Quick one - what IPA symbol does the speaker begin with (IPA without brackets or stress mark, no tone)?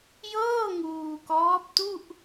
j